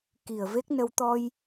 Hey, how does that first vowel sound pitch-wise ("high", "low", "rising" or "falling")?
low